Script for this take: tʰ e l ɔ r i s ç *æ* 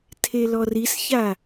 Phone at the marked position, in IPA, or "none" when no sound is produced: a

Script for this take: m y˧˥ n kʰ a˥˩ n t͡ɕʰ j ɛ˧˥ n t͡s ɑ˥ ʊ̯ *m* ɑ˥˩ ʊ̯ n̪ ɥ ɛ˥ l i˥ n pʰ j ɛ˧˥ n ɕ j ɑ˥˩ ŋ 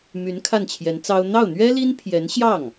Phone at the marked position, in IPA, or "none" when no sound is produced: n̪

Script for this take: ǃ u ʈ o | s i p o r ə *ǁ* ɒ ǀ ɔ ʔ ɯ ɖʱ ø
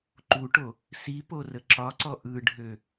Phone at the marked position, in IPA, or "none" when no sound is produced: ǁ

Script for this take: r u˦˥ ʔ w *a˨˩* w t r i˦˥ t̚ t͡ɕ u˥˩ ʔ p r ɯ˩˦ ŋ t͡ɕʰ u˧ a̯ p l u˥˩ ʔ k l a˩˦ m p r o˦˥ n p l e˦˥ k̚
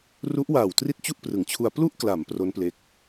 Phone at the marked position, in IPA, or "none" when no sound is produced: aː˨˩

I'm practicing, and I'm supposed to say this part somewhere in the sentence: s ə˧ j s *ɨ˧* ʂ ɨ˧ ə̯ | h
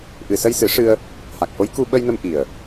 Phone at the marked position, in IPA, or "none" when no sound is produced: ɨ˨˩˦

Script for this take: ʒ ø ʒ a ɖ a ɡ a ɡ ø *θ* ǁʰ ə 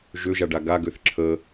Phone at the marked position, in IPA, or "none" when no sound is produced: θ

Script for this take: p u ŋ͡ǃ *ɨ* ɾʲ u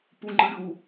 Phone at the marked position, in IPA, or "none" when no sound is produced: ɨ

